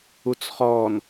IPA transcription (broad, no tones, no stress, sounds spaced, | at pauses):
u t͡s χ ɔ n